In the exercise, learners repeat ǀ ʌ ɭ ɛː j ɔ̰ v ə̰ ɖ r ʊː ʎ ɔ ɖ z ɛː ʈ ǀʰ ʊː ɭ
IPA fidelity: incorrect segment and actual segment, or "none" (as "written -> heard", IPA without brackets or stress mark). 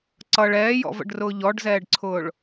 ʈ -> ɖ